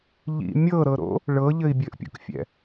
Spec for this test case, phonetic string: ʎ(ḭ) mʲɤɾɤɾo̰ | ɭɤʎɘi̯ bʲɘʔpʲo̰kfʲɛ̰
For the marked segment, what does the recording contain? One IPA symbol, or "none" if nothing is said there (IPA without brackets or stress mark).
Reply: ḭ